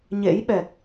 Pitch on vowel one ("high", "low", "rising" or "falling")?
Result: rising